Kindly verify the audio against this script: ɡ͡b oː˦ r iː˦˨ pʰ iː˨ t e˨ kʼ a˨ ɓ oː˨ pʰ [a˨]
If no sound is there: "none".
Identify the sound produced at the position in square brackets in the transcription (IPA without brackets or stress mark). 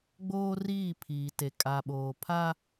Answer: a˦